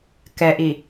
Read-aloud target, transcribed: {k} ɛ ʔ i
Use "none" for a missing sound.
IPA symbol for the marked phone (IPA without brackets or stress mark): k